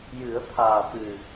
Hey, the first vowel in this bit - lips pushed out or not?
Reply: no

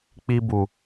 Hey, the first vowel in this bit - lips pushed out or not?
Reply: no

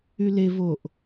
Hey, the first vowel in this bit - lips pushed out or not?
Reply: yes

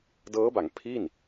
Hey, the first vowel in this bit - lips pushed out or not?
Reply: no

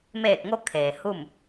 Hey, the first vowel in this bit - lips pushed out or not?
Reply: no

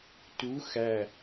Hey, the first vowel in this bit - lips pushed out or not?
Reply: yes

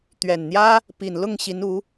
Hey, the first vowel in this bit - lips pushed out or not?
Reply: no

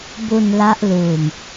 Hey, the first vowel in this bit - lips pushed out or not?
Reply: yes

